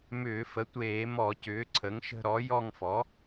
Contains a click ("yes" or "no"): yes